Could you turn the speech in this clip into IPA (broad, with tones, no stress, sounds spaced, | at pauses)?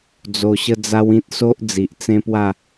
d͡z o˧ ɕ ə˦ d͡z a˦ w ĩ˦ t̚ s o˦ ʔ d͡z i˨ ʔ t͡s ẽ˦ p w a˥˧